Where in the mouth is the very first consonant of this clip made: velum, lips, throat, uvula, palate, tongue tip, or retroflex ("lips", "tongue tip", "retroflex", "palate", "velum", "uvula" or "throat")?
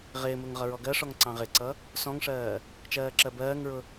uvula